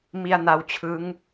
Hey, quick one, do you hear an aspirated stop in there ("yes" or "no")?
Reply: yes